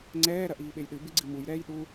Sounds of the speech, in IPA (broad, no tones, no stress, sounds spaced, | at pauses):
ŋ͡ǀ ɛː ɾ ɐ ʔ iː ɓ e j ɗ ɨ b ɨ ɡ͡ǀ ɨ m u j ɾ ɛː j ɗ u